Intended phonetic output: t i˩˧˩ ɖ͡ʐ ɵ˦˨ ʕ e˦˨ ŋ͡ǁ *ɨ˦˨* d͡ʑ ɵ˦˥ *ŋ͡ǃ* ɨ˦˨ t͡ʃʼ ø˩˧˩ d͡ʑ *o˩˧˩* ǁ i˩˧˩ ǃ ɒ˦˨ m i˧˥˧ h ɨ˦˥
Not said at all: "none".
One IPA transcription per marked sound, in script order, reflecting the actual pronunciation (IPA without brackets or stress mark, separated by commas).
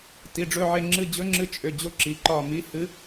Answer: ɨ˦˨, ŋ͡ǁ, o˦˥